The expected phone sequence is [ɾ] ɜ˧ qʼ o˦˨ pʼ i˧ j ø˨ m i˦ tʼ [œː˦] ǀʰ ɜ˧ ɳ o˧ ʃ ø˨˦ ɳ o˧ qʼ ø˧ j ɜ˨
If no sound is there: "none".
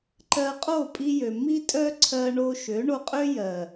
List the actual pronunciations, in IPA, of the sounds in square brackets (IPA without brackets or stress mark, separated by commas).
ǃ, œ˦